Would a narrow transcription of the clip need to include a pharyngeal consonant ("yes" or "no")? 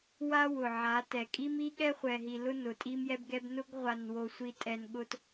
yes